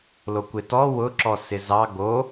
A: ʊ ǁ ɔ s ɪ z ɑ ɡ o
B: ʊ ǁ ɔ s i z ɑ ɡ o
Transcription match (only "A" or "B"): A